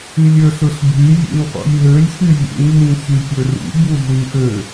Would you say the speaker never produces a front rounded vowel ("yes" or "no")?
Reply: no